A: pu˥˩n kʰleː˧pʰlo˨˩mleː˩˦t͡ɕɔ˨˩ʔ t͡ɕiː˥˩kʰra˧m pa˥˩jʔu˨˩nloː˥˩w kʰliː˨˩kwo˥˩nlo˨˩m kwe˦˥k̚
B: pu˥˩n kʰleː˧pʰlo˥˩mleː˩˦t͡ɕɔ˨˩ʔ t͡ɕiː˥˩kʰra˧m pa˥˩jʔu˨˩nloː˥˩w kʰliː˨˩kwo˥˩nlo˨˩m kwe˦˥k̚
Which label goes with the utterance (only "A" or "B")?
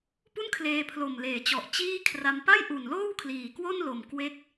A